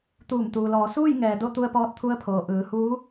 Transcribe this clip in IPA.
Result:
t̪ uː˧˩ m t̪ uː˩ l ɔː˩˧ s uː˥˨ j ŋ ɛː˩ d o˥˨ t̪ u˧ ə̯ p ɔː˧˥ t̚ t̪ʰ u˧˥ ə̯ pʰ oː˩ ʔ ɯː˩˧ h uː˧˥

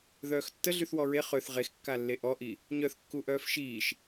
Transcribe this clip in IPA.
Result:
ð œː x tː ə ɮ y θ w ɔ ɹ e χ ø θ ʁ e x kː a lː e ʔ ɔ ʔ i | ɲ œ θ kː u ʔ œː f ʃ iː ʃ

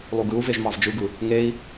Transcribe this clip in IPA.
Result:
lˠ u ɡ ɯ u̯ v e ʒ m ɑ v d͡ʒ ɯ ɡ ɯ | ŋ e i̯

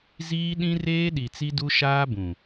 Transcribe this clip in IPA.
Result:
z iː˦ ɗ ĩ˦ r eː˦ ɗ i˨ t͡s i˦ d u˦ ʃ aː˦ b ũ˨

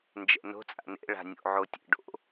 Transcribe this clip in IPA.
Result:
n d͡ʒ ɛ̰ n o̤ t͡sʼ a̰ n ḛ ɭ a̤ nʲ o̰ ʕ o tʲ ḛ ɖ o̰

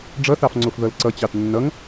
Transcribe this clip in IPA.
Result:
ɖ͡ʐ ʌ θ ɑ f ŋ͡ǀ o f ð ʌ l ǀ ʌ t͡ɕ ɑ t nː ʌ ŋ

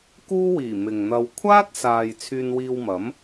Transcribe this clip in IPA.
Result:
k uː˥ w iː˨˩ m ɪ˨ ŋ n̪ ɐ˧ w kʷʰ aː˥ t̚ s aː˨ j t͡sʰ yː˧ n w iː˧ w m ɐ˨˥ m

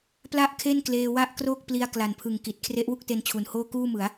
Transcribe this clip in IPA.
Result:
p l a˥˩ ʔ kʰ e˥˩ n k l eː˧ w a˥˩ ʔ k r oː˥˩ k̚ p l i˧ a̯ k l a˨˩ n pʰ ɯ˨˩ ŋ k i˨˩ t̚ kʰ r e˦˥ ʔ w u˥˩ k̚ t e˧ n t͡ɕʰ u˨˩ n h oː˥˩ k uː˥˩ m ɯ˩˦ a̯

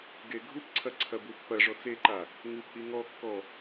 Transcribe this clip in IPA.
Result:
ɡ e ɡʱ u p ǀʰ ɐ ǀʰ ɐ b u pː ɐ ʐ ɔ t͡s e ǃ a | ŋ u p ʔ i ŋ ɔ kː ɔ

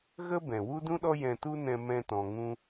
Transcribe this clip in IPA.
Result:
ɣ ə˦ b ɛ̃˨ w u˦ d ũ˦ ɗ ɔ˦ j ɛ̃˧ t u˦ n ɛ̃˧ m ɛ̃˧ t ɔ̃˨ ŋ ũ˧

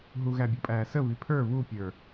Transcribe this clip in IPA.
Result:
ɦ u ɣ æ bʲ u pʼ æː s ə β i pʰ ə˞ β u pʲ ə˞

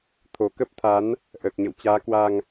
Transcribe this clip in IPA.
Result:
t̪ʰ o˨˩ k ə˦˥ p̚ t̪ʰ a˨˦ n | ʔ əː˨˩ k̚ ɲ ə̰˧˨ w t͡ɕ aː˨˦ k w a˧ ŋ

